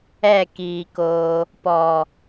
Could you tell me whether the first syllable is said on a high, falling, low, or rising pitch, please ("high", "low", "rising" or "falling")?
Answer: falling